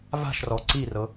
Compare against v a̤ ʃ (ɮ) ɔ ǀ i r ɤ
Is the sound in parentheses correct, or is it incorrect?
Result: incorrect